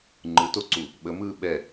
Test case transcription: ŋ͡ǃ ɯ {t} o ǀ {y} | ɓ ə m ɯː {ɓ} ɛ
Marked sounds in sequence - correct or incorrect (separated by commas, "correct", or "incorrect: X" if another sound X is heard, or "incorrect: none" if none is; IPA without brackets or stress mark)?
correct, incorrect: u, correct